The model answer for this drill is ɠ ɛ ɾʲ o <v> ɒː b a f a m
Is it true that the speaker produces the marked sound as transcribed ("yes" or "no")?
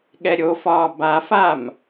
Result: no